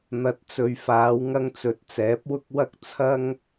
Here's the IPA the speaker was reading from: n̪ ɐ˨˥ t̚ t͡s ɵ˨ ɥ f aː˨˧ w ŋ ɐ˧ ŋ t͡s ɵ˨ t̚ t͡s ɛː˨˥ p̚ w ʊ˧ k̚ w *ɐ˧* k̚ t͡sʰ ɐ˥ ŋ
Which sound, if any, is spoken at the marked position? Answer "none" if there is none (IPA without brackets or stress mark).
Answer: ɐ˧